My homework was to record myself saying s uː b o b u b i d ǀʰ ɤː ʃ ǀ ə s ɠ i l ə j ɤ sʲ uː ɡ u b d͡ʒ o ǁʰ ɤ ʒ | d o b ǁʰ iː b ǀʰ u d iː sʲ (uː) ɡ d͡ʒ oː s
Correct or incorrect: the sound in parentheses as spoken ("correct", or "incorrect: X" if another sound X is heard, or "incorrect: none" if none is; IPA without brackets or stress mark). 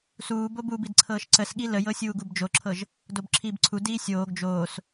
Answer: incorrect: oː